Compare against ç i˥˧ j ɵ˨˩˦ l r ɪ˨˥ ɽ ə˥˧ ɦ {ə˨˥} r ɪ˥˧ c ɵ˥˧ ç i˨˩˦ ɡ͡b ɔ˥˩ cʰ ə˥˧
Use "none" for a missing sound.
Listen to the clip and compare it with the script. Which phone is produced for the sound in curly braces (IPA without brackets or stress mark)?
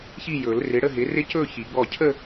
ɪ˨˥